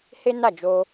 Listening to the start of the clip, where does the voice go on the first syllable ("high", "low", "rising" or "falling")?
high